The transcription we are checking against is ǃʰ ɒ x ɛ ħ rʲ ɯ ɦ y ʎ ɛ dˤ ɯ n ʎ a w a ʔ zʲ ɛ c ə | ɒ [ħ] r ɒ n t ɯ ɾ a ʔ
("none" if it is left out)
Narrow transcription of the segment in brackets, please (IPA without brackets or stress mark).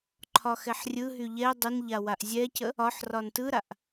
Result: ħ